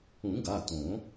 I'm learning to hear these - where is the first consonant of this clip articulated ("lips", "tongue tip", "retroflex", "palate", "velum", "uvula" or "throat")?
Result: velum